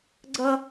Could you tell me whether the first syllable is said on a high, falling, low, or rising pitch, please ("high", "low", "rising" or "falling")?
high